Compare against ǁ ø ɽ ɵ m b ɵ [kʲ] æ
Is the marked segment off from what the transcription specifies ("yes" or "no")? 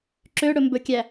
no